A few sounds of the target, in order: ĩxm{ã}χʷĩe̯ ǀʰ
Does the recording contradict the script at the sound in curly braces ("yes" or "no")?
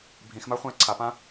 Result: yes